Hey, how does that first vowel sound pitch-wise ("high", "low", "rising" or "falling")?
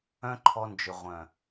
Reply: high